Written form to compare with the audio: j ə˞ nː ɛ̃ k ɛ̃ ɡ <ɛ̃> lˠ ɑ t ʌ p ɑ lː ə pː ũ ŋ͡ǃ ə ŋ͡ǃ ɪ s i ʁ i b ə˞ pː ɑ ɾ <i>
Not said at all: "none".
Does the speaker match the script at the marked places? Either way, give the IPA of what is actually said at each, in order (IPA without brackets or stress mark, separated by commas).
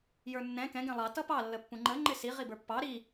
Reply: ɛ̃, i